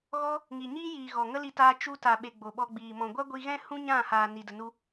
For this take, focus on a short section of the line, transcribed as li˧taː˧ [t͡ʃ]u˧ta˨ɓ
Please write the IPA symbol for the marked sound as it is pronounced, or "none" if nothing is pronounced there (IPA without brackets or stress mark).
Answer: t͡ʃ